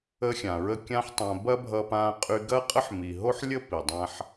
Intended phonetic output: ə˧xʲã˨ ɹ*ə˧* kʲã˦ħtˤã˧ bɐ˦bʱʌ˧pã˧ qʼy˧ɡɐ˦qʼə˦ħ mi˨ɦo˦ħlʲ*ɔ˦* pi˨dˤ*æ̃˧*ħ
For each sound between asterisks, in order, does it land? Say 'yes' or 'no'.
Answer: yes, no, no

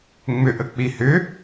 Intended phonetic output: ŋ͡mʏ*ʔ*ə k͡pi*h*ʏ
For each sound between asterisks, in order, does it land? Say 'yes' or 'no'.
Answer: yes, yes

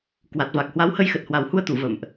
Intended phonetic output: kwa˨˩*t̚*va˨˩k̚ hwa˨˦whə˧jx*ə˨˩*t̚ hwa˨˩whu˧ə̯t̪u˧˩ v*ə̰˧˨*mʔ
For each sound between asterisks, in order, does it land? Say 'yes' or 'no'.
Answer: yes, yes, yes

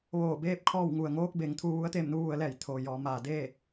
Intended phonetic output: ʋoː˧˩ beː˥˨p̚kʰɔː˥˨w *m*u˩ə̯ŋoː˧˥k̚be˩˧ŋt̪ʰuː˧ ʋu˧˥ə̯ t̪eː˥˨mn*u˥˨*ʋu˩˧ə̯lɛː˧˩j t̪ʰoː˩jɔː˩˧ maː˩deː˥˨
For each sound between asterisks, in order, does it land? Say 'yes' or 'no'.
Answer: no, no

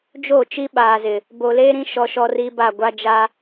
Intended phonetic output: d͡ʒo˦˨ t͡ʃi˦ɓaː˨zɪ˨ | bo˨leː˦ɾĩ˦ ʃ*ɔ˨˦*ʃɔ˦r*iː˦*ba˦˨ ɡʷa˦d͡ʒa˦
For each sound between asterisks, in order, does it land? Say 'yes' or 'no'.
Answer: no, yes

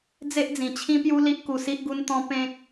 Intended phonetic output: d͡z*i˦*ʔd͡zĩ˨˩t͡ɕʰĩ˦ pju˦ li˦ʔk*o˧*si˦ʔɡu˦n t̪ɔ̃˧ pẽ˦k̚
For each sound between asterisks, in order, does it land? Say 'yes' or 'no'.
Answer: no, no

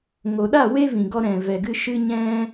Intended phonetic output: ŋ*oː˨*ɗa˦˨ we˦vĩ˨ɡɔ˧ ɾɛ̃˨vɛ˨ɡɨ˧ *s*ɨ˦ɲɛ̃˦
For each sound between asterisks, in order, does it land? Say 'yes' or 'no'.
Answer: no, no

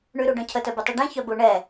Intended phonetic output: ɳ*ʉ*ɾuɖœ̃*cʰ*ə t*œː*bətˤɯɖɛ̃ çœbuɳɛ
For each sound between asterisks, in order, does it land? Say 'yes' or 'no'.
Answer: yes, yes, no

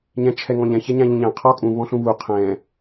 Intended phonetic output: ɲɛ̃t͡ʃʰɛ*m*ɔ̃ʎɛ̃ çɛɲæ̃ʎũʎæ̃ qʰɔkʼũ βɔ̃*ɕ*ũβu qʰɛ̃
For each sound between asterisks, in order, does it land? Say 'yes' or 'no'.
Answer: no, no

